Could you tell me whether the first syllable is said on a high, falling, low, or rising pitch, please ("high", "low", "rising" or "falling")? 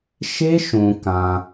high